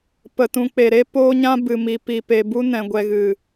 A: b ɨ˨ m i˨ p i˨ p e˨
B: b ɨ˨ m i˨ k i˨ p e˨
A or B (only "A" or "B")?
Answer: A